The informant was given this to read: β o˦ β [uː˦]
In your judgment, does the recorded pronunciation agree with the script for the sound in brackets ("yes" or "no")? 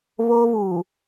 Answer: no